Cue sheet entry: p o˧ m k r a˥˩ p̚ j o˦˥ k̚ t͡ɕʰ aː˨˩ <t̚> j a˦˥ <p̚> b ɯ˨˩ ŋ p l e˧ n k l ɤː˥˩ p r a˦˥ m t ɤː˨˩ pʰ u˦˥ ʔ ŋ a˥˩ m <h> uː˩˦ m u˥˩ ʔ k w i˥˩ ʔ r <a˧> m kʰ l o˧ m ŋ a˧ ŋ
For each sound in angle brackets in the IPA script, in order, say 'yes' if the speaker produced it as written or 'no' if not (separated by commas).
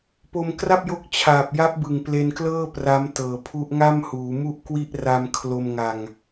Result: no, yes, yes, yes